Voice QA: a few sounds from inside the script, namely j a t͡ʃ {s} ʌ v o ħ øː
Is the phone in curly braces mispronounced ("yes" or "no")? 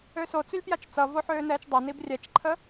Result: yes